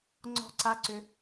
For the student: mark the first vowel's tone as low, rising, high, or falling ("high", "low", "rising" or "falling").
falling